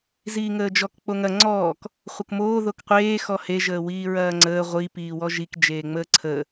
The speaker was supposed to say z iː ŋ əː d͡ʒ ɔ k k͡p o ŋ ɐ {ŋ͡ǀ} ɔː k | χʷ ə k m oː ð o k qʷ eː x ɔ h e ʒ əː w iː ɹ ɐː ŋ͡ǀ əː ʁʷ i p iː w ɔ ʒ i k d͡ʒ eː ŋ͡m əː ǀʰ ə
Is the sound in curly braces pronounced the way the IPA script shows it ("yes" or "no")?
yes